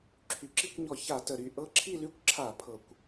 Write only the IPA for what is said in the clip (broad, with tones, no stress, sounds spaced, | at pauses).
ǁʰ y˩˧ ǁ i˥˧ kʷ ɲ ɔ˧˩˧ ç a˧˩˧ t ə˨˩ ɾ y˥˧ ʔ ɤ˦˥ ǁʰ i˥˧ l y˥˧ kʷ ǁʰ a˧˩˧ pʰ ɤ˨˩ kʷ